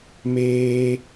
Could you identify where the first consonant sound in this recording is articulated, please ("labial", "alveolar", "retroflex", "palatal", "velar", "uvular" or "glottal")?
labial